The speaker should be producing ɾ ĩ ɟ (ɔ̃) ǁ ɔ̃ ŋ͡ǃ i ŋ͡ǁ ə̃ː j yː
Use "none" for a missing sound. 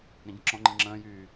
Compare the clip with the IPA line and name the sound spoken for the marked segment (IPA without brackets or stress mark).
ə̃